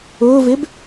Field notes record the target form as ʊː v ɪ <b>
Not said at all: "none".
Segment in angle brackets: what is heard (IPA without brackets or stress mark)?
b